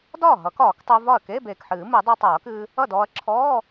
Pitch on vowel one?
falling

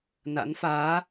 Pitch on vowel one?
rising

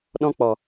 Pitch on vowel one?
high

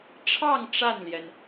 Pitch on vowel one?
falling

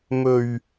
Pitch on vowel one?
low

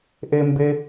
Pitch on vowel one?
high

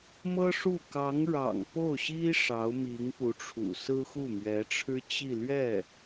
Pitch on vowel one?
high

